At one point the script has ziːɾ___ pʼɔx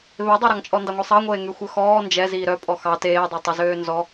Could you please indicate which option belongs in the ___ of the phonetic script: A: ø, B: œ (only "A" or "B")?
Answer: B